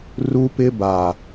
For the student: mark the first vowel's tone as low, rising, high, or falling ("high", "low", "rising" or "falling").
high